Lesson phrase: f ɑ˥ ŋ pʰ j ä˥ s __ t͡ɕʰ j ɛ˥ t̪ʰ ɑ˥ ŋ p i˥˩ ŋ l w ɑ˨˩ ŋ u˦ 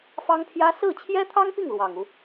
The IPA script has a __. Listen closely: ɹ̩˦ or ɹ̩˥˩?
ɹ̩˥˩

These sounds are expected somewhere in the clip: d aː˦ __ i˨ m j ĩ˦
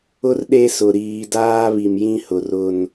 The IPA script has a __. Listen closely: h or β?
β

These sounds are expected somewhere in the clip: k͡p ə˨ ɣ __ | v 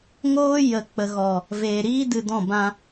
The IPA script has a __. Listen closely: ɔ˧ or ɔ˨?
ɔ˨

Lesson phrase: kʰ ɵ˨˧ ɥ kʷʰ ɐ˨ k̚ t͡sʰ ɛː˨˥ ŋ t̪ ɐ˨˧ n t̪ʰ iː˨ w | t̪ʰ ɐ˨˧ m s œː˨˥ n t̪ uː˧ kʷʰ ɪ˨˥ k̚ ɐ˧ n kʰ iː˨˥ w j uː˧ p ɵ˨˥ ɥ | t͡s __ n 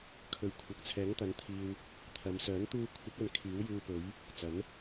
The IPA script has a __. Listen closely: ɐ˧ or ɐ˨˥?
ɐ˨˥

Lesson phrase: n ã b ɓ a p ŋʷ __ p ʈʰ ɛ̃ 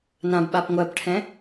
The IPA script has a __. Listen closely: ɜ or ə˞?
ɜ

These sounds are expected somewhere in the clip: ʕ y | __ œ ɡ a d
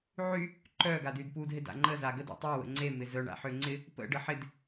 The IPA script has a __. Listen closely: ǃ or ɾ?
ǃ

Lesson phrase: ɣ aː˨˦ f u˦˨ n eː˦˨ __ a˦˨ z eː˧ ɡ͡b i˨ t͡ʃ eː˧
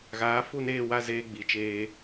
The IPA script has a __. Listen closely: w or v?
w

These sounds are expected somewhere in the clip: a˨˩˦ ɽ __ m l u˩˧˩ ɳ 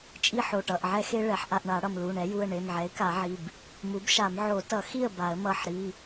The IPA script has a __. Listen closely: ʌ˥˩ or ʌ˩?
ʌ˩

